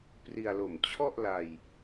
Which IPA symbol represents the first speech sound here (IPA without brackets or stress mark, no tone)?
p